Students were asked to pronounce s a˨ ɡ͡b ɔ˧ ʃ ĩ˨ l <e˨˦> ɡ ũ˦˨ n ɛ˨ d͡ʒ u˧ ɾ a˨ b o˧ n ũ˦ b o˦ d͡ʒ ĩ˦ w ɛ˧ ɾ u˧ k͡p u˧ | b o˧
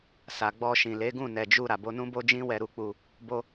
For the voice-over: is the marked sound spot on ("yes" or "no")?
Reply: yes